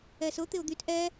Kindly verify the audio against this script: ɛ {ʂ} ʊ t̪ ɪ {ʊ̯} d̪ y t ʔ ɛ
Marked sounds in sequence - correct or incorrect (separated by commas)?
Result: incorrect, correct